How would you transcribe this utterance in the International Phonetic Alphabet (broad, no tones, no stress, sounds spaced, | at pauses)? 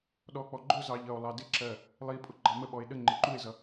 ɗ ɔ k͡p ɔ ɡ͡ǃ ʊ z ɑ ʎ ʌ o̯ lˠ ɑ d ɪ ǁ ɜ | lˠ i pʼ ʊ ɡ͡ǃ ɑ m ə ɓ ɔ e̯ ɗ ə ŋ͡ǃ ɪ ǃ u e̯ z ʌ